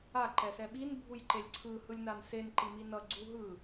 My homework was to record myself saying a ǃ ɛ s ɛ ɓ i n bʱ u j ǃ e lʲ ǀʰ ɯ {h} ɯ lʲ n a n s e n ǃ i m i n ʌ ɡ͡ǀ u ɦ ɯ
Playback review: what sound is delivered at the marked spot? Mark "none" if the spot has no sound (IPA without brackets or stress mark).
h